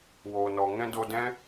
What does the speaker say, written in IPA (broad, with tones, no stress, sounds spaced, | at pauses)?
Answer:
w oː˨ n ɔ˨ ŋ ɛ̃˦ d o˧ d ɛ̃˦